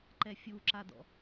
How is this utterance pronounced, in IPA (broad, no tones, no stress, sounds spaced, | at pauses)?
ǃ ɛ fʲ u ǁ a d ɔ̰